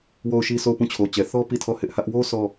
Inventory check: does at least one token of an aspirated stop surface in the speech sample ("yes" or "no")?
yes